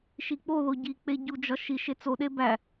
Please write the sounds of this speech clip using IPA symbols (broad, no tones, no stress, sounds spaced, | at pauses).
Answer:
ʃ i k͡p o ð o ɟ i k͡p e ɟ u d͡ʒ ɒ ʃ i ʃ e t͡s o ɗ e b æ